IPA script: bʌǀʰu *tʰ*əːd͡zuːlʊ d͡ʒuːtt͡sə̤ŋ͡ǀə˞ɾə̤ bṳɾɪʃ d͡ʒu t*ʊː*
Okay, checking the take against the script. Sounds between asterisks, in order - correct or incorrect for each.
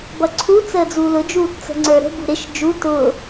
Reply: incorrect: t͡s, correct

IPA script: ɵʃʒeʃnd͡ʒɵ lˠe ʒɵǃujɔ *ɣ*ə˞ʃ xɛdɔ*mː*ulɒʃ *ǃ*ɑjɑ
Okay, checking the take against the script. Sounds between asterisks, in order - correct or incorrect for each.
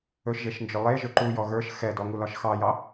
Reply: correct, incorrect: ŋ, incorrect: x

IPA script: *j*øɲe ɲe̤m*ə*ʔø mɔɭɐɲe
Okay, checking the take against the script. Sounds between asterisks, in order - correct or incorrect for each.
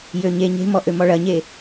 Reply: correct, incorrect: ɔ

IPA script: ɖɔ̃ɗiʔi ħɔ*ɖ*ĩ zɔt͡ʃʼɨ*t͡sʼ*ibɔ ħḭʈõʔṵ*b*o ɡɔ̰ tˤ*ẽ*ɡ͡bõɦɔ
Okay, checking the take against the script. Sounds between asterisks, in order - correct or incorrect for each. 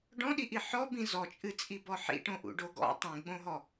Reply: incorrect: b, correct, incorrect: ɖ, incorrect: ĩ

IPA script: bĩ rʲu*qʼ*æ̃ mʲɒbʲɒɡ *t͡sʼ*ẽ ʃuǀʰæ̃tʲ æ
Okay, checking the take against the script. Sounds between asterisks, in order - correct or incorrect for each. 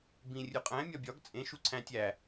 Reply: correct, correct

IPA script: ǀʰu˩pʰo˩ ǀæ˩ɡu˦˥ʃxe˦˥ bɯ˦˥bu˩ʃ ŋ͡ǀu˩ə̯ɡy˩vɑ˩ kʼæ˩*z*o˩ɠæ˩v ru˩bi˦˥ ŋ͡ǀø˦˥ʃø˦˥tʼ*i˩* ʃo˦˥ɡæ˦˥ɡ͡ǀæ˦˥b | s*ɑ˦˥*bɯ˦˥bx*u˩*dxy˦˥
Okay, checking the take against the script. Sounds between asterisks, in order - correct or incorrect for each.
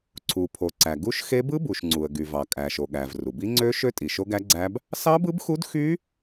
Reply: incorrect: ʃ, correct, correct, incorrect: u˦˥

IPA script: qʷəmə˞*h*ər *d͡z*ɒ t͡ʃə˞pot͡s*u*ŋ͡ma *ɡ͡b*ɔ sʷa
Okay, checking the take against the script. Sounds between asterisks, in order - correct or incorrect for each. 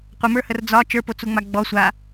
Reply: correct, correct, correct, correct

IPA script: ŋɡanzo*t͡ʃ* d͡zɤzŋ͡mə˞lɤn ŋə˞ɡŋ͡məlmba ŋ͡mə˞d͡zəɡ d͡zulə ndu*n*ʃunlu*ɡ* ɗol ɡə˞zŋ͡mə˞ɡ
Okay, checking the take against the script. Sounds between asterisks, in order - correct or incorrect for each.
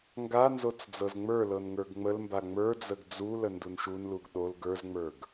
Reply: incorrect: t͡s, correct, correct

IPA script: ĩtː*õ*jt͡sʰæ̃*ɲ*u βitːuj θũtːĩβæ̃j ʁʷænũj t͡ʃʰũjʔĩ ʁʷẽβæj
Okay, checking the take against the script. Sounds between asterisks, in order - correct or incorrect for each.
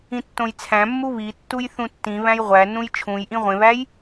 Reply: correct, incorrect: mː

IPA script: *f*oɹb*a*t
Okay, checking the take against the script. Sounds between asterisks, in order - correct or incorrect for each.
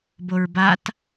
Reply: incorrect: b, correct

